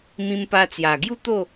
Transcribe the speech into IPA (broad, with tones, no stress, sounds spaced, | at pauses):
m ĩ˧ m p a˧ t͡s j a˨˩ ɡ j u˥˧ t̪ o˥˧